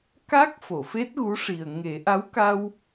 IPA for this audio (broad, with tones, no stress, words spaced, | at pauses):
ka˦˥k̚ fo˨˩˨fe˦˥t̚ɣu˧˥ʂi˨˩ə̯ ŋe˨˩˦ʔa˧˥wka˧w